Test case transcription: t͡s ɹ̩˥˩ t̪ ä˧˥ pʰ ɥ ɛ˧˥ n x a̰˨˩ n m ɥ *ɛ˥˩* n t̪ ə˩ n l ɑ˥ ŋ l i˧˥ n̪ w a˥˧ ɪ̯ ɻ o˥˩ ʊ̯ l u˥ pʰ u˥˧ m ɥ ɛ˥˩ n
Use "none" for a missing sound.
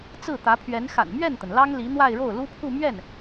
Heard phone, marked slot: ɛ˥˩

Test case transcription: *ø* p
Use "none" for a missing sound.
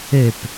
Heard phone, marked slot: ø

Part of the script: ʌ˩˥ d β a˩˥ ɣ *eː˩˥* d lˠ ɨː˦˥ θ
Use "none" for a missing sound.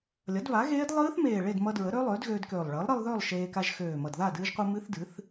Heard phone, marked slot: eː˦˥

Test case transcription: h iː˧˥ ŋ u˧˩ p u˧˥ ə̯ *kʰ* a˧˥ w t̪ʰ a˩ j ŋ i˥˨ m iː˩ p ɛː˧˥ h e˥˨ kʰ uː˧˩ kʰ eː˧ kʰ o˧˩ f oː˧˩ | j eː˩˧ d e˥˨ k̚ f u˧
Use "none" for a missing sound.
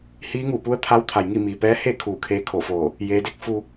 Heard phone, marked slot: t̪ʰ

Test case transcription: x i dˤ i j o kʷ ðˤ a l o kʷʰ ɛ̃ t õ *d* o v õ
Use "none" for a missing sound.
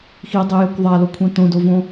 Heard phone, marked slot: d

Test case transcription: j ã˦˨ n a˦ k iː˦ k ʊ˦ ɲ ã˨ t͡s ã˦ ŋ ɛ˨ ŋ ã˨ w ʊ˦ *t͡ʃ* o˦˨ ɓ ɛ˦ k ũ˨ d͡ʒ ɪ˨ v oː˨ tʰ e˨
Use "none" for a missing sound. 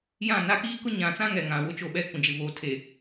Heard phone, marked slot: t͡ʃ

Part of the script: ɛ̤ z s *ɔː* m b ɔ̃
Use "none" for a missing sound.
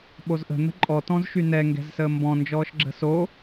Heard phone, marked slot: əː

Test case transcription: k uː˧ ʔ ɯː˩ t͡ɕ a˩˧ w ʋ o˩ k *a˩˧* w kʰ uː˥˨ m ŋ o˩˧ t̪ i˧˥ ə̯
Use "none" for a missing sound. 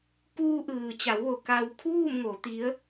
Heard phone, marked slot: a˧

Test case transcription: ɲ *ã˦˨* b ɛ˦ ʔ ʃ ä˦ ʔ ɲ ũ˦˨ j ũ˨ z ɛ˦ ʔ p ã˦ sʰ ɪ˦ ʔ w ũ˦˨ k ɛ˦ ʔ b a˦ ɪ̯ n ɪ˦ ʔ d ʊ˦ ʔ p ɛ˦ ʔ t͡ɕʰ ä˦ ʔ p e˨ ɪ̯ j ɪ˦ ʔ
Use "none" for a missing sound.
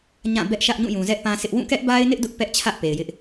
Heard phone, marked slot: ã˦˨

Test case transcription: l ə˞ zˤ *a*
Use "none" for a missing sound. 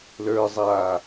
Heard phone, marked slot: a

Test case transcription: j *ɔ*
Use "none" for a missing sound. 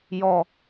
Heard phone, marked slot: ɔ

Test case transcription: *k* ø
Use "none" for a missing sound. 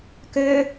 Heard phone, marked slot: k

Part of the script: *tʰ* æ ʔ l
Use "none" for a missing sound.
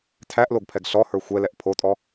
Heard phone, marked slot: tʰ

